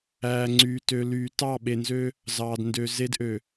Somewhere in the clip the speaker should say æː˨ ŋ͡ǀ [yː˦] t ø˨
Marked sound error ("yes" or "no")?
yes